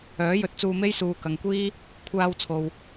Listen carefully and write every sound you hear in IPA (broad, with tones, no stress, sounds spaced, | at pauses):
œː˨˥ j ɵ˨ t̚ t͡s uː˧ m e˥ j s uː˨˧ k ɐ˨ ŋ kʷ iː˥ | kʷʰ aː˧ w t͡sʰ o˨ w